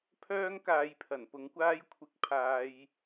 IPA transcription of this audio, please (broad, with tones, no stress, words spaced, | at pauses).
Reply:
pʰœː˥ŋkaː˨˧jpʰɐ˨˩n pʊ˨˥ŋkʷaː˥jkʷʰɪ˧k̚ pʰaː˧j